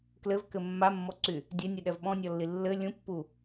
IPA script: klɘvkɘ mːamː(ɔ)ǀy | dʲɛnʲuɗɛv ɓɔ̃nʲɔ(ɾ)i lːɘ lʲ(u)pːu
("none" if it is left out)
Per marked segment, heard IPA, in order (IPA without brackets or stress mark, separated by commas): ɔ, lː, ũ